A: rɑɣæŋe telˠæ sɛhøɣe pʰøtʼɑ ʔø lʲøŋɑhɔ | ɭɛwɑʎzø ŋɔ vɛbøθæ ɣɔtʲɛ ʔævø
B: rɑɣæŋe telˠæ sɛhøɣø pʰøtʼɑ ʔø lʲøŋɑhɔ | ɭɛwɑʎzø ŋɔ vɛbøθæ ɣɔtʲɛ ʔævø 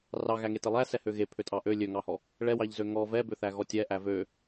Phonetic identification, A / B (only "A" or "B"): A